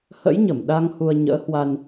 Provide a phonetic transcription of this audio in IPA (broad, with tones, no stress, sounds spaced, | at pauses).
h ə̰˧˥ j ɲ ə˧˩ m ɗ a˧ ŋ h u˧ ə̯ ɲ ə̰ː˧˥ h w a˧ n